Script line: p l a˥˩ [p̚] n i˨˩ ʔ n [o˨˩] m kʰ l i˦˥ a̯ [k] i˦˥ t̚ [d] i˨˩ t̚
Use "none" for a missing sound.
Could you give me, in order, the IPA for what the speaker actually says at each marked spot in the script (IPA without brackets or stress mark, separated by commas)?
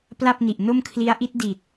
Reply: p̚, o˥˩, ʔ, d